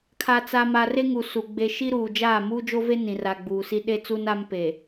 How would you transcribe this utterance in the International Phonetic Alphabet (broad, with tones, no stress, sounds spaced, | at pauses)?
kʰ a˨ t͡s a˨ m a˨ r e˦ ŋ u˨ s u˨ ɡ͡b e˨ ʃ i˦ ɾ uː˨ d͡ʒ aː˦˨ m uː˦ d͡ʒ o˦ v e˦ n ĩ˨ r a˨ ɡ͡b uː˨ s i˦ ɗ e˦ t͡s u˦ n a˦ m p e˨